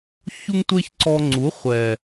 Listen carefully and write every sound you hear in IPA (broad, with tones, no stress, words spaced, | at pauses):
çu˦ŋtʷe˦ç ǀɔ˧ŋ͡ǀu˨˦ χʷɛ˨